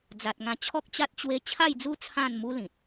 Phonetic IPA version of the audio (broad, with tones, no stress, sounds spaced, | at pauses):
d͡z a˨ t̚ ŋ ã˧ t͡ɕʰ ɔ˦ k̚ t͡ɕ a˦ t̚ t͡ɕ w e˦ t͡ɕʰ a˥˧ j d͡z u˦ t͡sʰ ã˥˧ n m u˦ l ĩ˨ t̚